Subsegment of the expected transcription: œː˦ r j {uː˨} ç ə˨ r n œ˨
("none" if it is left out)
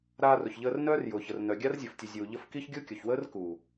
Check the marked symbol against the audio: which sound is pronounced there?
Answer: ʊː˨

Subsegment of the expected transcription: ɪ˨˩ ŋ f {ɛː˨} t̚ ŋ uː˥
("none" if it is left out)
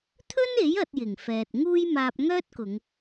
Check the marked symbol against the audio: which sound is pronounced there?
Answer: ɛː˨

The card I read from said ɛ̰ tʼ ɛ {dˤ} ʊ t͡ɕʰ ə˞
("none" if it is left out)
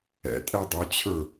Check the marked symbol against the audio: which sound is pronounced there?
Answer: dˤ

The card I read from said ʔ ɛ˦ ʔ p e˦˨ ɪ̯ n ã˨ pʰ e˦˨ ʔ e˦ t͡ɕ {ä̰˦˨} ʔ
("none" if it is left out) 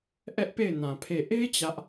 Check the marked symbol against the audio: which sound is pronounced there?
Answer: ä˦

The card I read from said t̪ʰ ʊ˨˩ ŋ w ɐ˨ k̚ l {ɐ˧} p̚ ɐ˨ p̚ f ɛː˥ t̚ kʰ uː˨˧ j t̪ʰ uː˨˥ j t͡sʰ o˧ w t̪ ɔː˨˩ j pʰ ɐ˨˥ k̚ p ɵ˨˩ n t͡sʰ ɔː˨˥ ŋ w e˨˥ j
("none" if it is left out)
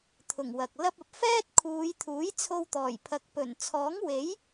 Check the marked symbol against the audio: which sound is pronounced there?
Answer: ɐ˧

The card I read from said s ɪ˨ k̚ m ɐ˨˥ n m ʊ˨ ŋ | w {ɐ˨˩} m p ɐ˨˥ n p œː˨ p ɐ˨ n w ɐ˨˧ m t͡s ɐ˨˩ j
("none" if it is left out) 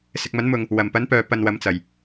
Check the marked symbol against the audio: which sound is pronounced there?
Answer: ɐ˨˩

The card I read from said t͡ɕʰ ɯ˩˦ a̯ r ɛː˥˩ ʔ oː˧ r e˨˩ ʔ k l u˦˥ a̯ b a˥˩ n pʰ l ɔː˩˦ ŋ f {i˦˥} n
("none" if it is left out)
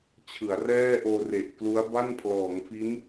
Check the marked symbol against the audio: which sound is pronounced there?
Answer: i˦˥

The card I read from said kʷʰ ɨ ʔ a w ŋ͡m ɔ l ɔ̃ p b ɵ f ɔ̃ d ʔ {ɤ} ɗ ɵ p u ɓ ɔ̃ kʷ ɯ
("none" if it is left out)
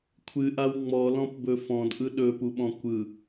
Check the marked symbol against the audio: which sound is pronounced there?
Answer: ɯ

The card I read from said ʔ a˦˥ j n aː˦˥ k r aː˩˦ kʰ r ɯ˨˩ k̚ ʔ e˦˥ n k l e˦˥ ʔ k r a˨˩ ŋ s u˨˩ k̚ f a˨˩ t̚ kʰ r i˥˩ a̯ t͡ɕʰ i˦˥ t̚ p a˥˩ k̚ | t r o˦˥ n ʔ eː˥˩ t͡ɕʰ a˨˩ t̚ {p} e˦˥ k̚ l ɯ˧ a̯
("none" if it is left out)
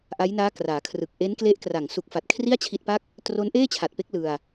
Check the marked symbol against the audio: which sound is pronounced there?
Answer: p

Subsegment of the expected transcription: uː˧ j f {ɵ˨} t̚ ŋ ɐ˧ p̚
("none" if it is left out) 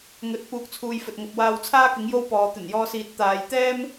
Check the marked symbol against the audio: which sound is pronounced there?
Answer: ɵ˨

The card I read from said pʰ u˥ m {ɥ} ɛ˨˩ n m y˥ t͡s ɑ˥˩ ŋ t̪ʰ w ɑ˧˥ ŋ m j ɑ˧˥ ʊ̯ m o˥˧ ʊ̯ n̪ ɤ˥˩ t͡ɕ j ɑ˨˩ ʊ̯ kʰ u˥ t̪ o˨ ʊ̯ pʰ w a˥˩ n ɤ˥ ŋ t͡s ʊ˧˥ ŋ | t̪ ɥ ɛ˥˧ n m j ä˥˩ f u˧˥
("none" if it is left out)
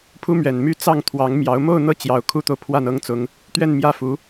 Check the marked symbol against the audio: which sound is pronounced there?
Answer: ɥ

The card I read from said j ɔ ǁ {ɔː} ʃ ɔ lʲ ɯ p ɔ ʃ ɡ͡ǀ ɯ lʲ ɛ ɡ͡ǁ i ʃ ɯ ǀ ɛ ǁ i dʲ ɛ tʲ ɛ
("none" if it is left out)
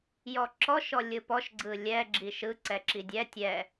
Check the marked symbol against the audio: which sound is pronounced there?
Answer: ɔ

